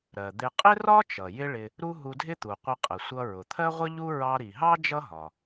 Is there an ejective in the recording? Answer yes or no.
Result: yes